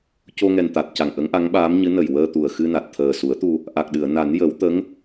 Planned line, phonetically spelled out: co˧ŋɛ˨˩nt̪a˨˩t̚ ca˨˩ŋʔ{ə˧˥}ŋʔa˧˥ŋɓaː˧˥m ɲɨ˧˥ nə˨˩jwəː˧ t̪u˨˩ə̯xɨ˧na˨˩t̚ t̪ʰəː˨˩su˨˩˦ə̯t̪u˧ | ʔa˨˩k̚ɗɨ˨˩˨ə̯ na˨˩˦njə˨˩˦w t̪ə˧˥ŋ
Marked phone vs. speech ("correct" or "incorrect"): correct